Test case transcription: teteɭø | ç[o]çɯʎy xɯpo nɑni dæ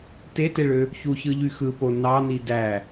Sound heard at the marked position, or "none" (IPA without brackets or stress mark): u